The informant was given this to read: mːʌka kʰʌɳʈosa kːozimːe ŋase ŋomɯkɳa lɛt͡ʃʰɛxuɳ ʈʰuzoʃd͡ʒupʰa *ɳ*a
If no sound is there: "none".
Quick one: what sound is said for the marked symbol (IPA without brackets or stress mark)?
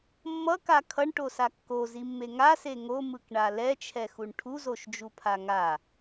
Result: ŋ